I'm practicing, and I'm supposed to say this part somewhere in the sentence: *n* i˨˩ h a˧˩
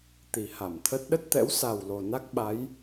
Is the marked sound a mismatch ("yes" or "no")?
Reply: yes